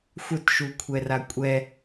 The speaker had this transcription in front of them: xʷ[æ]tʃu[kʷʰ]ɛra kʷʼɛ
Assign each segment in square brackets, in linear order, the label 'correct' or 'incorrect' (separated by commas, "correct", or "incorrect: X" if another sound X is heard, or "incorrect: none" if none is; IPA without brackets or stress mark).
incorrect: œ, correct